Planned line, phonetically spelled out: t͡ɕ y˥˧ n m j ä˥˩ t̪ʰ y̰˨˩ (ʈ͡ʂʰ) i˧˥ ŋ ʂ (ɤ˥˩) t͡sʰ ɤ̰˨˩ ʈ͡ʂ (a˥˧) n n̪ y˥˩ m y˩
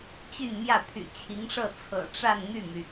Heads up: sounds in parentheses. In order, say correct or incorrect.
incorrect: t͡ɕʰ, correct, correct

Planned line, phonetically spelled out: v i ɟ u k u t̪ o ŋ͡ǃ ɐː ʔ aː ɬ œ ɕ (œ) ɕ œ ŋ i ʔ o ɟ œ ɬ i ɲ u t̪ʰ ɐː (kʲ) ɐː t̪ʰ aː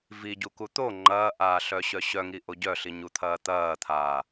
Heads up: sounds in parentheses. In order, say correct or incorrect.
correct, incorrect: t̪

